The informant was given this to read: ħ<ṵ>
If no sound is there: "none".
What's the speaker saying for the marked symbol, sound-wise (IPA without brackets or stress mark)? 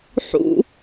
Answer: ṵ